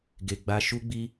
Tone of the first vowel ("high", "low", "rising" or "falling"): low